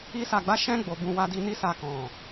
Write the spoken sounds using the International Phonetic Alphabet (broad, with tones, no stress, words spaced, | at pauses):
i˦sa˧ɡ͡ba˦ʃɛ̃˦ ɡ͡bo˧bũ˧ wa˧di˧ ni˦sa˧ kɔ̃˨